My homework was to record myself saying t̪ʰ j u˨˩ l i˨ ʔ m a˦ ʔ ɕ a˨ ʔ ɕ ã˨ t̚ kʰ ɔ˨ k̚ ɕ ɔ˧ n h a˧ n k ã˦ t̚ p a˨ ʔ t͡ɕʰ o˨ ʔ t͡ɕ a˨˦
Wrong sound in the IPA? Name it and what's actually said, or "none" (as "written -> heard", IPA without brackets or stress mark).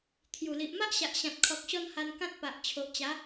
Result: none